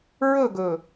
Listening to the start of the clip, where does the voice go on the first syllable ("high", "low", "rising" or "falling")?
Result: falling